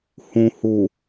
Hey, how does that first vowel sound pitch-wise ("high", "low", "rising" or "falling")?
low